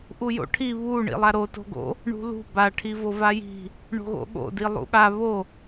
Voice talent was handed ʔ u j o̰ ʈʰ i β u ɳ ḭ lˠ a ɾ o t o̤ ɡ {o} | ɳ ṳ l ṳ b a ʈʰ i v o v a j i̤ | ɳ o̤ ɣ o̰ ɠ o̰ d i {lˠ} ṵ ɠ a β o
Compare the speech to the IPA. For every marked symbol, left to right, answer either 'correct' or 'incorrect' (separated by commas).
incorrect, correct